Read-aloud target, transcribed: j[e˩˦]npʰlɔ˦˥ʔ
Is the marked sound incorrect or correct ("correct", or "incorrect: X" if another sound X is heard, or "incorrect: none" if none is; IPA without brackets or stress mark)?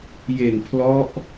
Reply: incorrect: e˨˩